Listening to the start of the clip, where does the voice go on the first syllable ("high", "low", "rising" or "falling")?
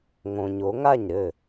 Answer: low